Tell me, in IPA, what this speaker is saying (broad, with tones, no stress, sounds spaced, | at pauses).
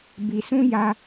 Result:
b i˧ s ũ˦ j a˧